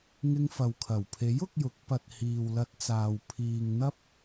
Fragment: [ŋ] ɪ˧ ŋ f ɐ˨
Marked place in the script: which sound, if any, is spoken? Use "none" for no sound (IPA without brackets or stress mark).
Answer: ŋ